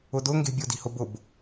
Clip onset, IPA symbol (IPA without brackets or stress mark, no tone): ʊ